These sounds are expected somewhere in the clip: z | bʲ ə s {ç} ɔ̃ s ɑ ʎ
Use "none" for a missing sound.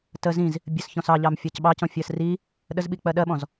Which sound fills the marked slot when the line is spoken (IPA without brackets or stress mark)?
ç